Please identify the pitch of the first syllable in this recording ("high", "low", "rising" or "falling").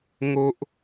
low